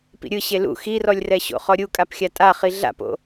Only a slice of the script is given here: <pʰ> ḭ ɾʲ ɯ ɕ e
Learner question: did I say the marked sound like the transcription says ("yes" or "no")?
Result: no